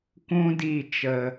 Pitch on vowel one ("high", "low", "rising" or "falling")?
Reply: high